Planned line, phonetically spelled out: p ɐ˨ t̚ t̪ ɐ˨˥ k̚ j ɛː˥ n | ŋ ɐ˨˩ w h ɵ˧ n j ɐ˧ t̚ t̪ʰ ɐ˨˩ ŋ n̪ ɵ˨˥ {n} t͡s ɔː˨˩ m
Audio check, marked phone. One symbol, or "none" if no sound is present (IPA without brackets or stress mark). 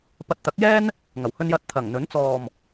n